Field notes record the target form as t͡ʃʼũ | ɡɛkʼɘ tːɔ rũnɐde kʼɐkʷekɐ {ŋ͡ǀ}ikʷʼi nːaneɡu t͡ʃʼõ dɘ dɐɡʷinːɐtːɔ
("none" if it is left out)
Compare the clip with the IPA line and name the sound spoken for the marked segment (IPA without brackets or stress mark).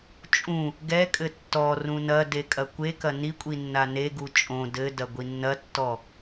n